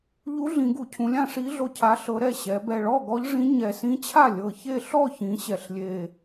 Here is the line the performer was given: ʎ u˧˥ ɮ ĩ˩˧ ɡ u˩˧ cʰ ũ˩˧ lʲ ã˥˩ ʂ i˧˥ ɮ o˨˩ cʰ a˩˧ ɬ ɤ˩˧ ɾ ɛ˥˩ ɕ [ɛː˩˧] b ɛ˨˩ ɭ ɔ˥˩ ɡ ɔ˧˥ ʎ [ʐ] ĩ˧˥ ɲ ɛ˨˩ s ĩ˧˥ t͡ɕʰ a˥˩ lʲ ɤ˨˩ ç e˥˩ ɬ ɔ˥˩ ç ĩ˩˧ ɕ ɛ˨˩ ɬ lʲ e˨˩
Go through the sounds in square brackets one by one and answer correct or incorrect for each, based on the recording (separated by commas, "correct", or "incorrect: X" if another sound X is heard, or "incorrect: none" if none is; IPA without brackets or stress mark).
incorrect: ɛ˩˧, correct